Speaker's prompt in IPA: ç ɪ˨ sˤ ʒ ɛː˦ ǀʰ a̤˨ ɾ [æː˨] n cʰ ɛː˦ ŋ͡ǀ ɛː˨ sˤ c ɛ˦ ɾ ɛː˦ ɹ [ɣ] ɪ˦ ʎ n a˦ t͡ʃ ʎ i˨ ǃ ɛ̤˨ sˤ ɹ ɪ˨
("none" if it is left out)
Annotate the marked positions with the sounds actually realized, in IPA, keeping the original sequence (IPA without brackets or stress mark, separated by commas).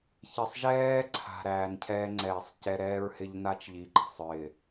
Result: æː˨, h